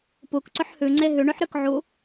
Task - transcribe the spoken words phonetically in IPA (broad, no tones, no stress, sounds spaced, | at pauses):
p u k ǀ ɵ ħ h ʉ ŋ͡ǀ e ɦ ʉ ɳ ʉ ħ ɾ ʉ k ʕ u